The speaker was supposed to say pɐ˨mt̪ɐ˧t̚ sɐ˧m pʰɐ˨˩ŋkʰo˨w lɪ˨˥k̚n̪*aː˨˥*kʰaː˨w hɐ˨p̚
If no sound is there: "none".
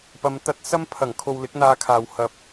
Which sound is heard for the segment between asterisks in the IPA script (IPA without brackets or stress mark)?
aː˧